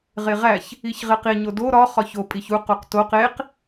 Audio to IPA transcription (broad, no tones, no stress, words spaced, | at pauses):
ʁeʁæç | içʁeqi ɲodo ɾɒ χɒço pʼiçu quqtoq eq